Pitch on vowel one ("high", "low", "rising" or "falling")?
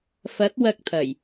rising